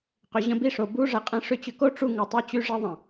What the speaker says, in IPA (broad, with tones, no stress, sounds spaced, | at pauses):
q ʏ˨ ʑ ə̃˧ b i˧ ʂ o˨ b u˧ ʐ ə˨ qʼ ə̃˨˦ ʂ ʏ˧ t͡ɕ ʏ˧ k o˦ ʈ͡ʂ u˧ ŋ u˨ tˤ u˧ t͡ɕ ʉ˧ ʐ ə˦ ðˤ ə̃˨